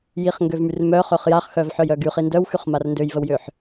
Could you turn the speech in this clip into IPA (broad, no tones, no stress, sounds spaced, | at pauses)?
j i χ ŋ ɡ ø v m y r m œ χ ø χ j a χ x œ v ħ œ j œ ɡ y χ i n d œ w x y χ m a r n d ø j v ə w j ø ħ